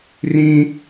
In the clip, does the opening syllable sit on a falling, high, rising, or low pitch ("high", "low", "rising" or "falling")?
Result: high